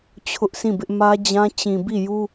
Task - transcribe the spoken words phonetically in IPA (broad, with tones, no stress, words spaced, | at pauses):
t͡ɕʰʊ˦ʔsʰĩ˦˨bɪ˦ʔ mä˦d͡ʑã˦ t͡ɕĩ˨bi˦˨ju˦